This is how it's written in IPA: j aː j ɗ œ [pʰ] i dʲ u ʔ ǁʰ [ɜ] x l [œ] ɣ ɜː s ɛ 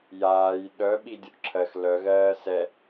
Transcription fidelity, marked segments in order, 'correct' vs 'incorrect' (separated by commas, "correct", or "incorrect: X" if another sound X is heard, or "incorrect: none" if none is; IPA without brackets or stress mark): incorrect: ɓ, correct, correct